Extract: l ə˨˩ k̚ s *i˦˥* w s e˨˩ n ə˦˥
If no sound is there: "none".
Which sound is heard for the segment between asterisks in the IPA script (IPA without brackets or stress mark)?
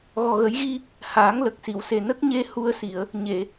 i˨˩˨